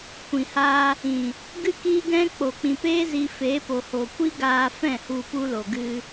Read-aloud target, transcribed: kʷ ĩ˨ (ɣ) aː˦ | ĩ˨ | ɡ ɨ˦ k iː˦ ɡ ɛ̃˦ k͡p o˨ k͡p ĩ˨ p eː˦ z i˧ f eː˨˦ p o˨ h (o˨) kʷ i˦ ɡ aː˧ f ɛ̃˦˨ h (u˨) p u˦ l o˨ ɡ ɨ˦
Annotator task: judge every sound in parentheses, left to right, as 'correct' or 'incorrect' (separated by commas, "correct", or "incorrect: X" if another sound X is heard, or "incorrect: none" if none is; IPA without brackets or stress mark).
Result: incorrect: h, correct, incorrect: u˧